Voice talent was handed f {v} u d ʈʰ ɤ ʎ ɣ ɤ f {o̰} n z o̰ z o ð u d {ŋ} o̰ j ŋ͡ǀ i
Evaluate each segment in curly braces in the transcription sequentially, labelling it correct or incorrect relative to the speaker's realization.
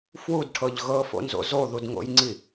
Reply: incorrect, correct, correct

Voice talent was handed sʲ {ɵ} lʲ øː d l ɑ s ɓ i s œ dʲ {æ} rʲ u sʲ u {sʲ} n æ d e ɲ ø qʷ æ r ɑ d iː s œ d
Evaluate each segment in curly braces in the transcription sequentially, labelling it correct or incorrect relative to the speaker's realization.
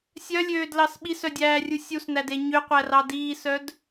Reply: incorrect, incorrect, incorrect

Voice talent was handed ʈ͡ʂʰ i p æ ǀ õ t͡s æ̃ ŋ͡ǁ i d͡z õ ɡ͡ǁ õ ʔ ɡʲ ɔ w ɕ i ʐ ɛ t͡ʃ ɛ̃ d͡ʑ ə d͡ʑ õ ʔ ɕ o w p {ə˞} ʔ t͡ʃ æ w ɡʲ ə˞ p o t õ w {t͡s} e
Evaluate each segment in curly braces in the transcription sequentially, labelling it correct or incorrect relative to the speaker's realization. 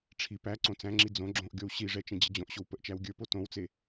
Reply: incorrect, correct

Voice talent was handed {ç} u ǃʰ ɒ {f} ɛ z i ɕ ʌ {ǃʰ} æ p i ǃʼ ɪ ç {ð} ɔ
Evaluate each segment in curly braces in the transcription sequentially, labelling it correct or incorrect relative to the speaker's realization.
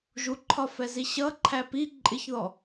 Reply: incorrect, correct, correct, correct

